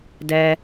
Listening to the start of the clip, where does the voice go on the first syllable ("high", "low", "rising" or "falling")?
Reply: low